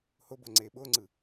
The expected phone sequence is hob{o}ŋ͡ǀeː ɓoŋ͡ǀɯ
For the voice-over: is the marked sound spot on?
yes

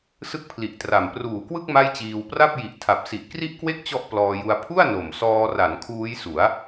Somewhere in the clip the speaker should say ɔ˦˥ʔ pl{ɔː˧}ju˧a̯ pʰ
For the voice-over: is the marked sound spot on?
yes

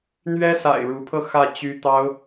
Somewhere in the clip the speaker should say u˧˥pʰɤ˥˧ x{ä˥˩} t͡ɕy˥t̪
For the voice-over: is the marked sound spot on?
yes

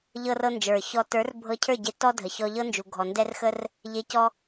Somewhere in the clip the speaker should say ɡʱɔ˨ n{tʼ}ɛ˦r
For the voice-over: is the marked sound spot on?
no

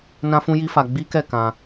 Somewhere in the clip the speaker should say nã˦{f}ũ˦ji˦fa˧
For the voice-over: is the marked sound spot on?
yes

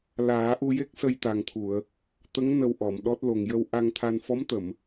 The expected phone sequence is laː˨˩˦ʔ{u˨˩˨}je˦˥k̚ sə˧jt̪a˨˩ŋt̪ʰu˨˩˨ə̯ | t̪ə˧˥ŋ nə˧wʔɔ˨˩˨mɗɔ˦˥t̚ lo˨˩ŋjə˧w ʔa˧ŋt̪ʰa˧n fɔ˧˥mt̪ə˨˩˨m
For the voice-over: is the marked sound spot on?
no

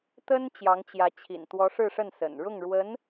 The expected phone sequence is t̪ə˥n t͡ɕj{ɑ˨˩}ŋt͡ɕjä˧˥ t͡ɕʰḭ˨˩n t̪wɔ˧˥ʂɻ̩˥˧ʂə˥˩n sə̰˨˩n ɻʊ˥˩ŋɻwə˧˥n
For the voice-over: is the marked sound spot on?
no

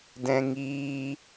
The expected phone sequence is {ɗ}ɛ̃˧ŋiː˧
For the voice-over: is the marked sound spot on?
no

